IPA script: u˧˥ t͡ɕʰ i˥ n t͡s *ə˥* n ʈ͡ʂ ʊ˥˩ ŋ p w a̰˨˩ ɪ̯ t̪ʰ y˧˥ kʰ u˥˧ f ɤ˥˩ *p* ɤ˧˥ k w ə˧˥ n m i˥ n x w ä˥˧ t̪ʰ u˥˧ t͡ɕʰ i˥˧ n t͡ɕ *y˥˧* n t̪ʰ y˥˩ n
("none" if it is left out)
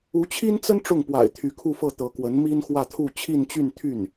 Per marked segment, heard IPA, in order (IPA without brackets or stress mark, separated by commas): ə˥, t̪, y˥˧